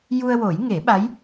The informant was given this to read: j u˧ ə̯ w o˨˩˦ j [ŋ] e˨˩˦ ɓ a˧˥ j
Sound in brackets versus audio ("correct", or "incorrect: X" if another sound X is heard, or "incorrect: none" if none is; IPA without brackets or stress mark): correct